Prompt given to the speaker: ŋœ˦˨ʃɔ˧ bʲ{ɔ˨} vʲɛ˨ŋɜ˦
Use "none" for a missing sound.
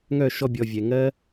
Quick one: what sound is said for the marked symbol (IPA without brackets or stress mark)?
ɔ˨